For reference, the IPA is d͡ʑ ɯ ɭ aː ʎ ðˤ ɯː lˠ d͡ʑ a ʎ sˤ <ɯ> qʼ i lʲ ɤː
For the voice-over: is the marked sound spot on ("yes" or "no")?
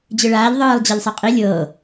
no